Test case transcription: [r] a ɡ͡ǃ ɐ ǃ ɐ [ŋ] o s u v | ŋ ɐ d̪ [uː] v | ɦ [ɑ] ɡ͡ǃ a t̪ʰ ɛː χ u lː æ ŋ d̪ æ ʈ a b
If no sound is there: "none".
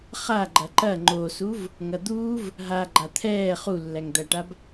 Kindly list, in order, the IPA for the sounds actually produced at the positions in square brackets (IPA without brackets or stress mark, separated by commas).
χ, ŋ͡ǃ, uː, a